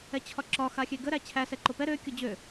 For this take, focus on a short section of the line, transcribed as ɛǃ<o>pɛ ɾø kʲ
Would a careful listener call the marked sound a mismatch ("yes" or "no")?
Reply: no